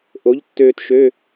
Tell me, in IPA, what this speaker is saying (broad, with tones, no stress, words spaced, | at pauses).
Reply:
ʔo˩˥ʎtːøː˧tʃø˧˥˧